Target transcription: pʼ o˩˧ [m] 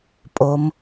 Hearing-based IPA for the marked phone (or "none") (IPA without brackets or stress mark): m